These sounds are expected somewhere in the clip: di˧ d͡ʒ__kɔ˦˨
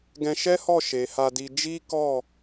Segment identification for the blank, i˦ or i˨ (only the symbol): i˦